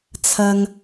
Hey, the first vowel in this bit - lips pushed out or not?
no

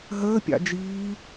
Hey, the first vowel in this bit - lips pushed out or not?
no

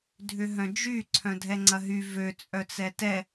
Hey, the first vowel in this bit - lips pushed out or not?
yes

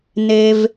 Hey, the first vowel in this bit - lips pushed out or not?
no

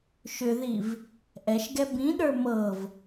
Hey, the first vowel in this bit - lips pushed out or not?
yes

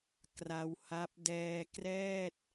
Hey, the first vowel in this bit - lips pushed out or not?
no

